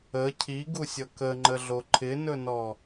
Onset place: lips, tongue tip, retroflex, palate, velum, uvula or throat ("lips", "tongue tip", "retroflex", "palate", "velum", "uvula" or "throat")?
palate